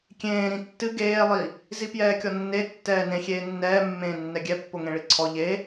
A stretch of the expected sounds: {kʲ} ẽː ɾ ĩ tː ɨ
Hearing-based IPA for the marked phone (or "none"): kʲ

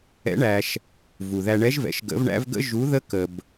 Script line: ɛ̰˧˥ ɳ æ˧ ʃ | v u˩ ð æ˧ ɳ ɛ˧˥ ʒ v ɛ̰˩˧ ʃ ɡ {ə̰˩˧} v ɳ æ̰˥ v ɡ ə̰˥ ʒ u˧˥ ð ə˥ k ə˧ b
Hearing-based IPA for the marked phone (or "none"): ə̰˧˥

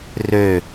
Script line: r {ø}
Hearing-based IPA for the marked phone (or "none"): ø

